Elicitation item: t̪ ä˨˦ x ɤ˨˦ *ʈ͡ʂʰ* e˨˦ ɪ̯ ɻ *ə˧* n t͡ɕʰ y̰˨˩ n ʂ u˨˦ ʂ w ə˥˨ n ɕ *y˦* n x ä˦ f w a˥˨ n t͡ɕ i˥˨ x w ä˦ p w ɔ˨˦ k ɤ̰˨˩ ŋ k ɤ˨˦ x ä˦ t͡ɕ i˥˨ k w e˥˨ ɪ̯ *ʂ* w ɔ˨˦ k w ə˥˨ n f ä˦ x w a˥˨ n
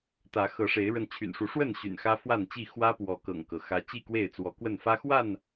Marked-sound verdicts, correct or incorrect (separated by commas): incorrect, correct, incorrect, incorrect